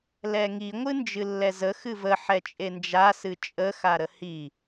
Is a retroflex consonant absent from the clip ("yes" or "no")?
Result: yes